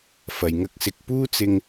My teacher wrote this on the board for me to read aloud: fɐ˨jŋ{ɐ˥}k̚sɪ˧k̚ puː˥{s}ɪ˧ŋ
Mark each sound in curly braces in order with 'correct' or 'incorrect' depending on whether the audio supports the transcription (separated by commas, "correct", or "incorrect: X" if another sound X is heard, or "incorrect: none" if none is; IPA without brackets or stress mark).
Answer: correct, incorrect: t͡s